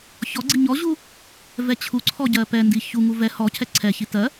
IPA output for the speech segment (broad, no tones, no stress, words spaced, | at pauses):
çɔɡ͡ǀi ɲɔʑu | vɛt͡ɕʰuǀʰɔ ɟɜpɛndi çuŋu vɛ hɔcʰɛ ǀʰɛçi tɜ